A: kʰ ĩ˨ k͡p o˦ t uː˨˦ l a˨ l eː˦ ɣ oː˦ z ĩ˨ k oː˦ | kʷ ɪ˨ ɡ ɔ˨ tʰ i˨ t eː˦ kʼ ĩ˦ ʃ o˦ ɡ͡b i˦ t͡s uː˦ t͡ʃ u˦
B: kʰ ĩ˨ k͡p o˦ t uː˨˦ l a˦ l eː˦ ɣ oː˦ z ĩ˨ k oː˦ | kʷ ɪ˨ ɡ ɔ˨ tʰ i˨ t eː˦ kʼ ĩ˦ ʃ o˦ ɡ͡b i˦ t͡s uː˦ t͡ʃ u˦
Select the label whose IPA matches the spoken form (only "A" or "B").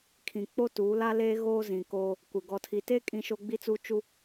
B